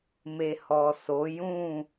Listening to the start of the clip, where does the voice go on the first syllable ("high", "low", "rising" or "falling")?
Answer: low